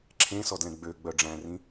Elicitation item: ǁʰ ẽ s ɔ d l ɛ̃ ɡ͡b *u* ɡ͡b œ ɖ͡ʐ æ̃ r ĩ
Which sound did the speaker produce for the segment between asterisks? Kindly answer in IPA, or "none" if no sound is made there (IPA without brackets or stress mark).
ø